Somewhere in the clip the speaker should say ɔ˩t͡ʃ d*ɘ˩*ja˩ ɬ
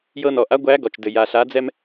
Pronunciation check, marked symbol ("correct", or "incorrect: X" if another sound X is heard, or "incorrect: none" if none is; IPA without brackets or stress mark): correct